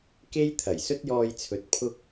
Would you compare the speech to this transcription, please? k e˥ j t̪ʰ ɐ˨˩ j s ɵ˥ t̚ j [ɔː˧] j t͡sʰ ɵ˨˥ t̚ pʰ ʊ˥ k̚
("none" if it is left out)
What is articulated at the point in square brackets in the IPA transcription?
ɔː˧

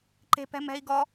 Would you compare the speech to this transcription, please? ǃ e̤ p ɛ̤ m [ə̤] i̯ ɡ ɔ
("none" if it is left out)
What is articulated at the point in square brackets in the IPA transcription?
ɛ̤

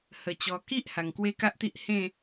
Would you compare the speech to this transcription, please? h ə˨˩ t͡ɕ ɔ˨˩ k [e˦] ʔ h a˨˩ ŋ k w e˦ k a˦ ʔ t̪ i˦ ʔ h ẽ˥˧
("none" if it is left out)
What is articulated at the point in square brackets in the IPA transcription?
i˦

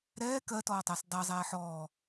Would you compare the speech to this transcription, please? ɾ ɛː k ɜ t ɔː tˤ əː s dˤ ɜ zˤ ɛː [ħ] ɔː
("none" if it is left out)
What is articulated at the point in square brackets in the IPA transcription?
ħ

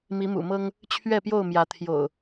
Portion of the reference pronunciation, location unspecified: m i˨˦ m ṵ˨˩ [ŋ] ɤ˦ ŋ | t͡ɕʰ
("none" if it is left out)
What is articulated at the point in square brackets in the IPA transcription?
m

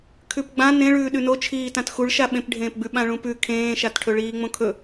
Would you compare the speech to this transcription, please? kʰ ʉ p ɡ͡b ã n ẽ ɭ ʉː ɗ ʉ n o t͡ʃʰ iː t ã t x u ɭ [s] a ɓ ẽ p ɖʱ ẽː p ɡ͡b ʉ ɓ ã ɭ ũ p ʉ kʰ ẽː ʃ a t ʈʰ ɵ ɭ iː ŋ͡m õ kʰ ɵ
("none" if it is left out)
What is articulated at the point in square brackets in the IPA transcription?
ʃ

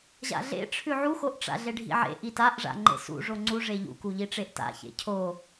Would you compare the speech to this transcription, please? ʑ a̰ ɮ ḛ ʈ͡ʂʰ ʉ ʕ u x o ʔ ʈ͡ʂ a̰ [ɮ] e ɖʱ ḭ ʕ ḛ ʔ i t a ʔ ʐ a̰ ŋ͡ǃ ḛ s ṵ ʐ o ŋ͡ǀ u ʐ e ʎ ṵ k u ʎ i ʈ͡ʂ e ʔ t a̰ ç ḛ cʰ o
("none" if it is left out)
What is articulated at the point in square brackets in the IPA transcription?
ɮ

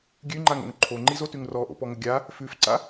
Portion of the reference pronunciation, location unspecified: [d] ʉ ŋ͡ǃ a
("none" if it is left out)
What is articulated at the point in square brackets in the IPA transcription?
ɡʲ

